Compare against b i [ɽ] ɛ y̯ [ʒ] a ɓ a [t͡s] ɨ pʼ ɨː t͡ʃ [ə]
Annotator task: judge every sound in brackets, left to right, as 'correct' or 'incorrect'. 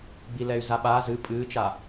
incorrect: l, incorrect: z, incorrect: z, incorrect: a

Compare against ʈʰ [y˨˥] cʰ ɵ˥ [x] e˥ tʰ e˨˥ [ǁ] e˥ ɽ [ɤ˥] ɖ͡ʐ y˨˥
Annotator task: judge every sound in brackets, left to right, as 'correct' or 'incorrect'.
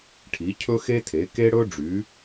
incorrect: i˨˥, correct, incorrect: k, incorrect: ɵ˥

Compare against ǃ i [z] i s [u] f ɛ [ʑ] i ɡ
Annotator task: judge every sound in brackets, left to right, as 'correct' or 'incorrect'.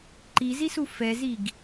correct, correct, incorrect: z

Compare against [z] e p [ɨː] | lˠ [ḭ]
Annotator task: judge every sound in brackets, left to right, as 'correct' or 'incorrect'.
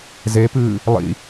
correct, correct, correct

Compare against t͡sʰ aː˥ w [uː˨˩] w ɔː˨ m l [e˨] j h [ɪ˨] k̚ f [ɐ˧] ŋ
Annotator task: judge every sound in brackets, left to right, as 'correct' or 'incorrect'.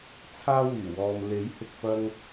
incorrect: yː˨˩, incorrect: e˨˥, correct, correct

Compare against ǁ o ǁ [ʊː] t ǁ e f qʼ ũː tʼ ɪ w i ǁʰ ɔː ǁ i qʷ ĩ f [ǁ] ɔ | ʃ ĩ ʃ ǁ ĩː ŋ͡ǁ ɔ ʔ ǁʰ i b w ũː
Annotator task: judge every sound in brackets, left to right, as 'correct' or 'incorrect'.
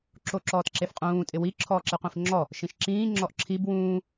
incorrect: ɔː, incorrect: ŋ͡ǁ

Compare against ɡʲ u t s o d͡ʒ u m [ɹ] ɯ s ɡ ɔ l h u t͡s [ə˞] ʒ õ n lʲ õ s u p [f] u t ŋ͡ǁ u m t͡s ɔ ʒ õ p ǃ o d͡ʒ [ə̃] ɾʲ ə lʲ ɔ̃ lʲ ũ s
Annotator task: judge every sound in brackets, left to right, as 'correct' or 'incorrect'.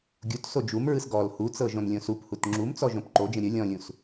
correct, incorrect: ɤ, incorrect: h, correct

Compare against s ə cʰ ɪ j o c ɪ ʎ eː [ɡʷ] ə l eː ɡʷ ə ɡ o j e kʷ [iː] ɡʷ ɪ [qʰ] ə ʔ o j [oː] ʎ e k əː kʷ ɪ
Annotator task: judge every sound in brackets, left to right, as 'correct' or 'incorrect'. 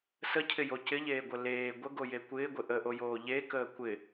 correct, incorrect: ɪː, incorrect: ʔ, correct

